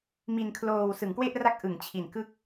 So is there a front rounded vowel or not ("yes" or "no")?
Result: no